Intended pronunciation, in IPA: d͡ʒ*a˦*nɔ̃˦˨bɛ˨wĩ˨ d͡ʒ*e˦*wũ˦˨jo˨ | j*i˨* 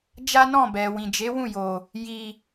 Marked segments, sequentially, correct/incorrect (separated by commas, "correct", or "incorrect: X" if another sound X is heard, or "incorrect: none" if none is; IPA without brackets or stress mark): correct, incorrect: e˨˦, correct